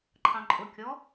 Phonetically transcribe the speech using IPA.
ǃʰ ɑ̃ ǃʼ ʊ kʲ ɔ

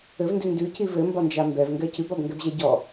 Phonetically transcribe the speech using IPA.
ɘ v n d ʉ n d ʉ c i v ɘ m b ɒ n d͡ʒ a m b ɛ v ŋ ɡ ɛ c ʉ b ɒ b ŋ ɡ ɛ b ʑ ɛ ɟ ɔ

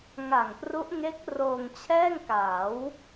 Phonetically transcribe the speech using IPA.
ŋ a˨˩ ŋ p r u˦˥ ʔ ŋ e˦˥ k̚ r oː˧ ŋ t͡ɕʰ ɛː˥˩ ŋ k aː˩˦ w

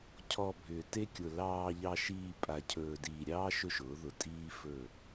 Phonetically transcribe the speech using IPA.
cʰ ɔ˨ bʱ ʏː˨ t e˦ kʲ ʊ˨ l ɑː˨ ʎ ɑ˨ ʃ iː˨ pʼ a˨ cʰ ɵː˨ d iː˨ ɾʲ ɑː˦ ʃ ɵ˦ ʃ ʊː˨˦ ð ʊ˨ tʼ iː˦ f ɵ˦˨

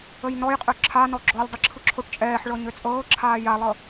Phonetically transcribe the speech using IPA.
ə j n ɔ j qʼ ø ǁʰ a n ɔ ɡ͡ǁ ɔ lʲ dˤ ə ǁʰ ɯ ǁʰ o ʈ t͡ʃʼ ɛː ħ ɭ ɤ ɲ ø t͡sʼ ɤː ǁʰ aː j a lˠ ɤ

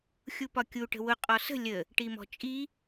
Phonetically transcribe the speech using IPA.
xʲ u p ɒ kʲ u ʈ ə̤ w ʊ qʼ ɔ s ə̤ lʲ ə | ʈ i m ɔ̤ t͡ʃʼ i

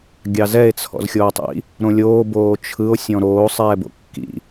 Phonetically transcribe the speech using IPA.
ɡʲ ɑ z ɛ e̯ t͡sʰ ɔ̰ z xʲ oː tˤ ḭ | ɾ õ lʲ oː b oː t͡ʃʰ ɯ o̯ sʲ ɔ̃ ɾ oː sˤ ɛː b o̰ kː ḭ

